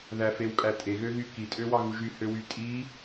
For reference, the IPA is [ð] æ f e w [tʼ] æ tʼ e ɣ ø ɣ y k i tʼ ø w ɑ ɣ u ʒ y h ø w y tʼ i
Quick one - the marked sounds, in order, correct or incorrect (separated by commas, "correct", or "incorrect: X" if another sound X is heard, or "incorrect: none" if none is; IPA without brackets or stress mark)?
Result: correct, incorrect: kʼ